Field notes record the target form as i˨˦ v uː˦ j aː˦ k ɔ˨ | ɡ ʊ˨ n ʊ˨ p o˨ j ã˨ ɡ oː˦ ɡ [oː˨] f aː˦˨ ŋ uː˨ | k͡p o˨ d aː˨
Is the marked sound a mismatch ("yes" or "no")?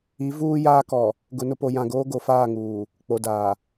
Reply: yes